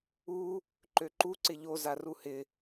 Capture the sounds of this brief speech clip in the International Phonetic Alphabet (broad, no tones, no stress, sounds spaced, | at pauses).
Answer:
u | ǃ ø ǃ u ǀ ɪ ʎ o z a r u h ɪ